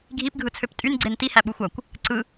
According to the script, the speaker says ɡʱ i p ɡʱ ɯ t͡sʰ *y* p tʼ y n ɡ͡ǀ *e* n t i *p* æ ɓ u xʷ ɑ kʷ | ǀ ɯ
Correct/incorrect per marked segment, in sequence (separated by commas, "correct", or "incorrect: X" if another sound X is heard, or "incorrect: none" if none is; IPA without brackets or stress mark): incorrect: ø, correct, incorrect: h